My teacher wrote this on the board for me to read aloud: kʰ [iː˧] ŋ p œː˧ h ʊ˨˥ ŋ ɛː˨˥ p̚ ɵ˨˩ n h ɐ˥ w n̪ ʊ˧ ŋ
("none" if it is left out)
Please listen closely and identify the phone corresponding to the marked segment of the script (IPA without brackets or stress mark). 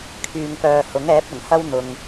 yː˧